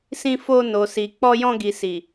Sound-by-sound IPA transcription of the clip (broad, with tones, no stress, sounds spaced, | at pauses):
s ĩ˧ f o˧ n o˨ s i˨ k͡p ɔ˧ j ɔ̃˧ ɡ i˨ s i˨